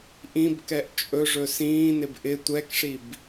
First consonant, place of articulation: glottal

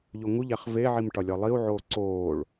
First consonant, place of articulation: palatal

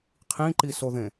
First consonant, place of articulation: uvular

